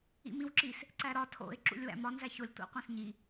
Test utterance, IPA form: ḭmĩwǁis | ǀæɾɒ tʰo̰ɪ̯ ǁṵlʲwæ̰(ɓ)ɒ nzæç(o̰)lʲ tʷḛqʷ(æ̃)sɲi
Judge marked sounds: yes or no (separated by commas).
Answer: no, no, yes